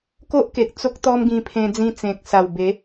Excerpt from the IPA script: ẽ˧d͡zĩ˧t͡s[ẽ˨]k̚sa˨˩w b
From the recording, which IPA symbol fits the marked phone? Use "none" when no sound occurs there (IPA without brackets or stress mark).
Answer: ẽ˨